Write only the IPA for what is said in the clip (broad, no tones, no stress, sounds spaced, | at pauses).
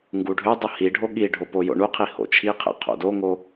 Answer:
ŋ ɡ u ɖʱ ø dˤ u h i ɖʱ o ɠ i ɖʱ o p o j o̰ ɳ u qʰ i h o̰ t͡ʃʰ i qʰ ḛ qʰ o̰ d o ŋ o